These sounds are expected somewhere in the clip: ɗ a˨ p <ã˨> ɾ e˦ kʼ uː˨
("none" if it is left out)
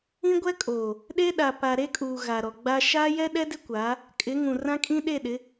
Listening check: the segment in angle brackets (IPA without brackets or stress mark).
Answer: a˨